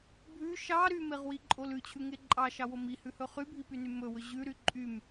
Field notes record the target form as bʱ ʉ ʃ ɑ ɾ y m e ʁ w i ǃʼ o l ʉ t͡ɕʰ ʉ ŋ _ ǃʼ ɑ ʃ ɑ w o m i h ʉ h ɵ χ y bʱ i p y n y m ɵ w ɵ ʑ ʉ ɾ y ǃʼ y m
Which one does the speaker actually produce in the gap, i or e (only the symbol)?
e